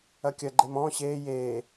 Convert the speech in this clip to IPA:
ɐ kʲ ɐ ɡ͡ǃ e m ɔ̃ ɕ eː j eː

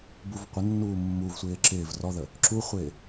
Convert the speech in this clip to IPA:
b u v qʷ ə nː uː mː u v sʷ ɪː ǁ ɪː v r ɔ ð ə | ǁ u χʷ ɪː

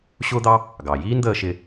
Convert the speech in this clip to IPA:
ɕ ʊː˥ d̪ ɑ˥ | ɡ ɑ˩ j iː˥ n d̪ əː˧ ʃ ɪ˧

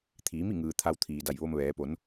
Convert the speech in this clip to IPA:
t̪ʰ iː˩˧ m i˥˨ ŋ ɯː˩ t̪ʰ a˧ w t̪ʰ iː˩ d a˧˩ j ʋ o˧ m ʋ ɛː˩˧ p o˩˧ n

